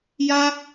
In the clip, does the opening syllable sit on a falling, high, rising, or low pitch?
high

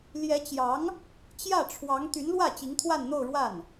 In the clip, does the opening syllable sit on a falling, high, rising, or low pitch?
rising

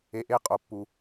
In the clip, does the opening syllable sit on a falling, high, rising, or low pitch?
low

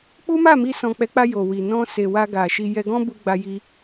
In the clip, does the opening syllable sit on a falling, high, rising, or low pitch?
high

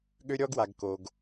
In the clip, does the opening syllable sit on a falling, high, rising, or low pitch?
high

